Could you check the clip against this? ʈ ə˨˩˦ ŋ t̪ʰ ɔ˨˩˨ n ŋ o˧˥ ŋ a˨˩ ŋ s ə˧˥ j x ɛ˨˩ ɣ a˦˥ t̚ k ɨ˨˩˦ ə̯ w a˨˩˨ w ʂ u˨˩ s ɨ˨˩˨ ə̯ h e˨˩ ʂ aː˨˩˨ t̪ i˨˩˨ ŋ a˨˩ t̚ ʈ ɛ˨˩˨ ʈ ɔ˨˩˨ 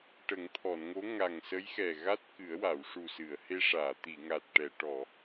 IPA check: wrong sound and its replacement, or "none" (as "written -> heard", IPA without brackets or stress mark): e˨˩ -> e˧